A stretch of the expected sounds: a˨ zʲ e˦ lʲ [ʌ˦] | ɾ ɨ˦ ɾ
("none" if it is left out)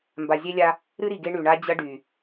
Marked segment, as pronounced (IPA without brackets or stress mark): a˦